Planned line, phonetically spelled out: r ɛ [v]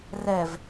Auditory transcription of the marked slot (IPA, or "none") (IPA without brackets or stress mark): v